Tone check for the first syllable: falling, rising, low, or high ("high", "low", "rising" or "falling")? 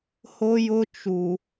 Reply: high